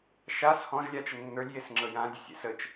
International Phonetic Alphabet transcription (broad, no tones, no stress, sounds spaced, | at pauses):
ʃ a s h ɔ̃ ʒ lʲ a t͡ʃ ə nː ə˞ lʲ j e s ŋ͡ǁ ɤ j ã dʲ ə sʲ ḛ s ə t͡ʃ